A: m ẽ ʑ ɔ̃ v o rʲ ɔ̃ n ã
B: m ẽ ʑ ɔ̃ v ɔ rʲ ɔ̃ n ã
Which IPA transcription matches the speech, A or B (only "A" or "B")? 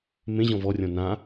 B